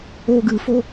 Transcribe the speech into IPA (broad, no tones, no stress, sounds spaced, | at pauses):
o ɡ ɨ f o